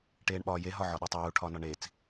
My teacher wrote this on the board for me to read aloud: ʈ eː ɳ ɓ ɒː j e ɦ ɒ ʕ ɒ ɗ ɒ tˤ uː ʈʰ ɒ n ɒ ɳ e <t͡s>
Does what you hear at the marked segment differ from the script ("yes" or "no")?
no